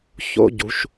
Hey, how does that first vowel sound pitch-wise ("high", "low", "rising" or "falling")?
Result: high